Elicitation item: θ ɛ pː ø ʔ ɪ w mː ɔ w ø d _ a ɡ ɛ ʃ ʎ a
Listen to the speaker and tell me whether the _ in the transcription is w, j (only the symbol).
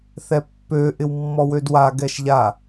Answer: w